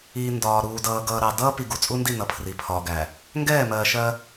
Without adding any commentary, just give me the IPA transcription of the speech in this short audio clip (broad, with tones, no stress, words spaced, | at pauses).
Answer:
i˨ ndɒː˨ɾuː˨ dʌː˨ɡʌː˨ɾɑ˨ dʌː˦ pi˨ɡu˨t͡sʼu˦ndi˦˨ nʌ˨˦pʰri˨pʰɒː˨ɡæ˨ | ŋɡɛː˦˨mɜː˨ʃɜ˦